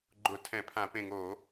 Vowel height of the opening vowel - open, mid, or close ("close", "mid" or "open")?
close